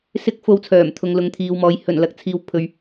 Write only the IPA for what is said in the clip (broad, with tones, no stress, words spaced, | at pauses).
sɪ˥k̚ fo˧wt͡sʰœː˨˩mt̪ʰʊ˨ŋ lʊ˨ŋt̪ʰiː˨wmɔː˨˧j hɵ˨˩n lɐ˧k̚t͡sʰiː˨w pʰɵ˨ɥ